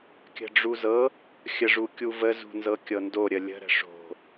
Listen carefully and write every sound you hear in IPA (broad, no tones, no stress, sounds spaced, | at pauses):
kʲ ə̤ ɖ͡ʐ u z ɤ | xʲ ə ʐ u kʲ u v ə z ṳ n z ɤ kʲ ɤ n d o ɾʲ ə lʲ ə̤ ɾ ə̤ ʂ o̤